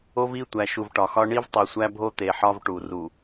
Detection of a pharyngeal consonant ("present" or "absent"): present